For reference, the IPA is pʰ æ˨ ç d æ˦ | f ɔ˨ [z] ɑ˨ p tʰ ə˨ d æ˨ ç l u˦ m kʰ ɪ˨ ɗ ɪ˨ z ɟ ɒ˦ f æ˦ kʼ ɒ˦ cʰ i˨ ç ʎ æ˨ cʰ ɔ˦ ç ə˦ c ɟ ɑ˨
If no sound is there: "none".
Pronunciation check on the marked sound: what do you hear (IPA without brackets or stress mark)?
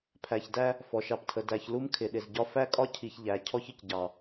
ʃ